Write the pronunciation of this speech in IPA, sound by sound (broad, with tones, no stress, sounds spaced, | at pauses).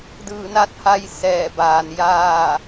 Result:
d ɯː˧˩ n a˥˨ t̚ h a˧ j s ɛː˧˩ b aː˩ n j aː˥˨